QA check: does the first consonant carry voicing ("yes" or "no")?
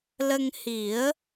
yes